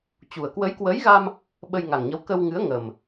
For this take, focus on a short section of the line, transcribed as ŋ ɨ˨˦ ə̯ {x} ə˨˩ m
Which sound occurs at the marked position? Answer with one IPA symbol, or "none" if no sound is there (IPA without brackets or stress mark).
ŋ